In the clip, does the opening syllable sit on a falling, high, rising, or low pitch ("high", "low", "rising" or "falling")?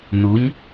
rising